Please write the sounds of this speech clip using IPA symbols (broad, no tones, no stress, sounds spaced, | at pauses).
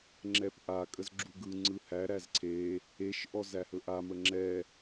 ŋ͡ǁ ɛ p ʔ a kʼ ə z ɡ͡ǁ u ɡ ɯ ŋ͡ǀ ɯ h æ ɾ æ z ǀʰ e | e ʃ ʔ ɔ z æ h ɵ ʔ a m ə ŋ͡ǁ ɛ